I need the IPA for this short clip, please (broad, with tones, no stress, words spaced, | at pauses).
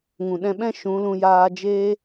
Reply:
ŋũ˨ɗɛ̃˧ɓɛ̃˦ ʃũ˨˦lũ˧ jaː˧ d͡ʒeː˦